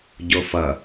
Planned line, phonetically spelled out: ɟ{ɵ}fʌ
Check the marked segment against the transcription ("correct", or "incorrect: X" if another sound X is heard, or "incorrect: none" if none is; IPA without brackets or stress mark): incorrect: o